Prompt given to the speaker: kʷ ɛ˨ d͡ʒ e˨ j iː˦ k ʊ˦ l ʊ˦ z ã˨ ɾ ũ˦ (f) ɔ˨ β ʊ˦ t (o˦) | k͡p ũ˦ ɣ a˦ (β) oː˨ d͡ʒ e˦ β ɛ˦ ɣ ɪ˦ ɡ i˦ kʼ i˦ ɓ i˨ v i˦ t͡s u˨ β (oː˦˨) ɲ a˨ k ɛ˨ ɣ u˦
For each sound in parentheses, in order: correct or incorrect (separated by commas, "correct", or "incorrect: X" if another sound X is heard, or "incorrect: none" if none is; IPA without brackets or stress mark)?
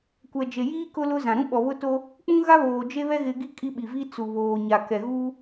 incorrect: ɓ, correct, correct, incorrect: oː˨